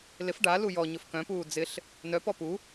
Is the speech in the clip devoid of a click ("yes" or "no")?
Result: yes